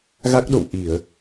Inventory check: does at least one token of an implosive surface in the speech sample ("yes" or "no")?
yes